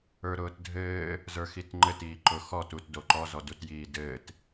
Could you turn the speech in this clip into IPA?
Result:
ə˞ ɾ ʊː t dʱ ɘː | z ə˞ x i t ŋ͡ǃ ɘ t iː ǃ ʊ x ɔ t u t d o ǃ ɔ z ɔ d u t j iː d ɘː t

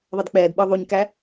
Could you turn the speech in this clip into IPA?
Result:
ðˤ ʌ d k͡p ɛː d ɓ ə˞ ðˤ u ɲ k æ

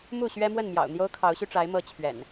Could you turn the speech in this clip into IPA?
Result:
m u˥˨ ɕ ɥ ɛ˦ m w ə˥˨ n m j ɑ̰˨˩ ʊ̯ n̪ j o˦ ʊ̯ kʰ ɑ˨˦ ʊ̯ ɕ y˧ ʈ͡ʂ a˨˦ ɪ̯ m ɤ˨˦ t͡ɕʰ ɥ ɛ̰˨˩ n

